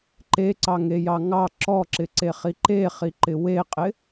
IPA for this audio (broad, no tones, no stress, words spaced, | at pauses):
ǃeǀɑŋejɑ ŋɑ ǁɔǁɪǀeχi ǃeχiǃɪ weqʼɪ